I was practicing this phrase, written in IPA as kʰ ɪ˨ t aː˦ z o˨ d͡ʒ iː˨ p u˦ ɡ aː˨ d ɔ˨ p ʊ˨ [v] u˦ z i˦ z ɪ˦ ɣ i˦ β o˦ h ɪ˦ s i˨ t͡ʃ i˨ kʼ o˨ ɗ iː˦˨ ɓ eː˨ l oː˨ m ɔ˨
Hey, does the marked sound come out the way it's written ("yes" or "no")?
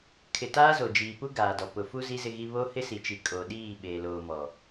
no